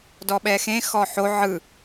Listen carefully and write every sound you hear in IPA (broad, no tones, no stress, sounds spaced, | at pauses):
d ɔ ɓ ɛ x ẽ x ɔ ħ o ʕ ɯ